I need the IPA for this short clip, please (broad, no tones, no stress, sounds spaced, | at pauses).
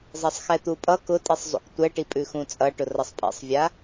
zˤ ɛ sˤ x ɛ t̪ u pʼ ʌ k ʊ tʼ i sˤ zˤ ṵ k tʷ ɛ ʈ i pʼ ʉ x ũ t͡sʼ ʌ ʈ ʊ r ʌ sˤ pʼ ḛ sˤ vʲ a